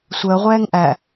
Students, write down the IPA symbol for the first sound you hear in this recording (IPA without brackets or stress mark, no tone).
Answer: sʷ